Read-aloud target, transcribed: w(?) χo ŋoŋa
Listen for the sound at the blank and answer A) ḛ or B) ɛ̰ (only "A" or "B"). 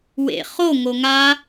A